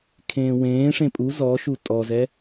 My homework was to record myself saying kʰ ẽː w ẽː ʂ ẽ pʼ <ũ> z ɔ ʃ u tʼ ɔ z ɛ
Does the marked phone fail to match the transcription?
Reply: yes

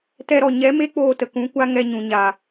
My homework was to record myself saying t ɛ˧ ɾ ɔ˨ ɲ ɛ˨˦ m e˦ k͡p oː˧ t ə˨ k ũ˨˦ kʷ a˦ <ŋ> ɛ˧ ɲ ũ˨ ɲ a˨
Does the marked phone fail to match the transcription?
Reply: no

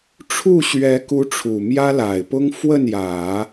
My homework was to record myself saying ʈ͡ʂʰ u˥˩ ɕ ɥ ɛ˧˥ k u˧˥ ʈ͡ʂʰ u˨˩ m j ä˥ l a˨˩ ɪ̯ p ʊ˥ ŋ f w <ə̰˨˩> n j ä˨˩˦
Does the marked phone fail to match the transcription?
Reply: yes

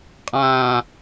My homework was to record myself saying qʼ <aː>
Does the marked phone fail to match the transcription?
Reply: yes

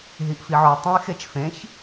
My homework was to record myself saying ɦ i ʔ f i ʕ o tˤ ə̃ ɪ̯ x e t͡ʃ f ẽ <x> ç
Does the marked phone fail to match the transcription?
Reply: yes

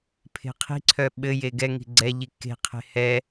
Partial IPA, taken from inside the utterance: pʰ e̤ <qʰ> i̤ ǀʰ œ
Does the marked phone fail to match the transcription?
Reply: no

